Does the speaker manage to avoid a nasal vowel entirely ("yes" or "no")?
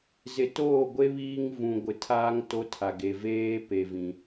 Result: no